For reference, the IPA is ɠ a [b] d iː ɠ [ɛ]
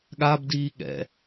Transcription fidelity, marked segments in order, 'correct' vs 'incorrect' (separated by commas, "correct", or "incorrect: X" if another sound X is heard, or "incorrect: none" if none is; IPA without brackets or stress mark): correct, incorrect: ɛ̰